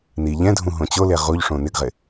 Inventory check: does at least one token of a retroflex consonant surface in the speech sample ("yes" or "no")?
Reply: yes